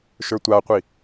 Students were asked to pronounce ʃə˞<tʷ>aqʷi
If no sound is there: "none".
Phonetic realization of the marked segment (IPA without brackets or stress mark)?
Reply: tʷ